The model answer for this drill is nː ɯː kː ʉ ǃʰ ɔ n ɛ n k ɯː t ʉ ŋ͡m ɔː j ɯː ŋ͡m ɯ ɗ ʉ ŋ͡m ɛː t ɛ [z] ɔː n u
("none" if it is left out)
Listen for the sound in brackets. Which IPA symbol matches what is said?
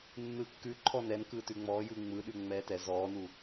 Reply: z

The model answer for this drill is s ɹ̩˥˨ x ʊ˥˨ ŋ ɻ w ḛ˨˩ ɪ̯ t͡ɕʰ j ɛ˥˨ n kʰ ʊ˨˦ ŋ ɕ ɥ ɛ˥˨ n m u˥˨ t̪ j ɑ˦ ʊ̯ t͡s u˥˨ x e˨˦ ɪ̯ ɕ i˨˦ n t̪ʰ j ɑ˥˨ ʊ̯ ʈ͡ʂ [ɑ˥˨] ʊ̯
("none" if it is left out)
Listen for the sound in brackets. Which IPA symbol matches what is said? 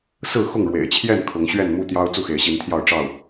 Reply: ɑ˥˨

